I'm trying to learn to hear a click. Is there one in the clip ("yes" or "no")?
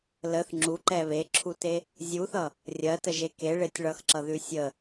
yes